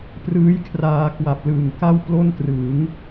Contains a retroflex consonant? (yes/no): no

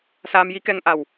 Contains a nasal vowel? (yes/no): no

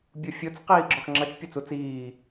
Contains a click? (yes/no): yes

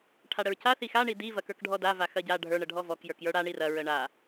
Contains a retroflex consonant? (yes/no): yes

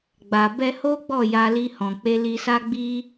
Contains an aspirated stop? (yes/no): no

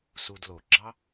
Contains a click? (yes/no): yes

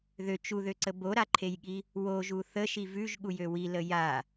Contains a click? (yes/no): yes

